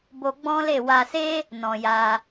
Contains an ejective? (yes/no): no